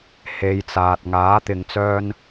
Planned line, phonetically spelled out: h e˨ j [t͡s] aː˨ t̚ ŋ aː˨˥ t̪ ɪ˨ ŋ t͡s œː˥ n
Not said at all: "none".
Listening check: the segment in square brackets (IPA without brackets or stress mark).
t͡s